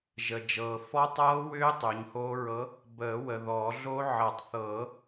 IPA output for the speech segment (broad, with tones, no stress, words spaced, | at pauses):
ʒə˨d͡ʒɤː˨ fɔ˦˥tˤɤː˦˥wʏː˦˥ tˤʏː˨˦ɲhoː˦˥ ɹɤ˨˦ | bəː˨˩˦ wə˨ðɔ˨˩˦ɮo˦˥ ʕʌ˨˩˦tˤθɤ˨˩˦